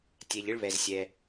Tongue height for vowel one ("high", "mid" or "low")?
mid